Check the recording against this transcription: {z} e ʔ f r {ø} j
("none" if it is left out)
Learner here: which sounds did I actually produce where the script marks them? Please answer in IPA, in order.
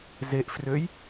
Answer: z, ø

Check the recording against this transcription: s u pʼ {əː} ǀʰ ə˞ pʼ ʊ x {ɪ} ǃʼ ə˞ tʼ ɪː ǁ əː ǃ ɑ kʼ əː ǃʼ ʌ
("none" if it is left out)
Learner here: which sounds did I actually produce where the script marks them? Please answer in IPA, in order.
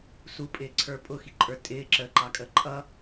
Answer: ɪː, i

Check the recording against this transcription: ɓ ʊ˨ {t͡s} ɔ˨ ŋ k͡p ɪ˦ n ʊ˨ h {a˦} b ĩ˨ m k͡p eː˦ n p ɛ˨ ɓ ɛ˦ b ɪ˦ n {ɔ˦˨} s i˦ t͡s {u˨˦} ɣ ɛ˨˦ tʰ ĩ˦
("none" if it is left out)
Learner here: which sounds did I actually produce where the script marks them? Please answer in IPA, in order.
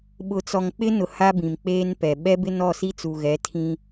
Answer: t͡s, a˦, ɔ˦˨, u˨

